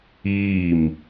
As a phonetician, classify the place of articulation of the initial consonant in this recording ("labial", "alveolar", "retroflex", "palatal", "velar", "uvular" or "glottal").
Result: labial